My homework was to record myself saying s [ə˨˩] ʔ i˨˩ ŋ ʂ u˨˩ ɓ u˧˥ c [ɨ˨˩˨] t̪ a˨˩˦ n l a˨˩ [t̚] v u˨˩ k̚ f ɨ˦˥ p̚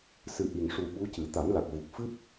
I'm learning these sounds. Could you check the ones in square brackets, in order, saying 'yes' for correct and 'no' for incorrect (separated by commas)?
no, no, no